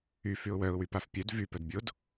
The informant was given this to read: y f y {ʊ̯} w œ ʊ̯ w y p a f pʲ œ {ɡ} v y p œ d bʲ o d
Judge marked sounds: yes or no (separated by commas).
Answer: yes, no